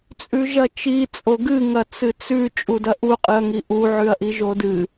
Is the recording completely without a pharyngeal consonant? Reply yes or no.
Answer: no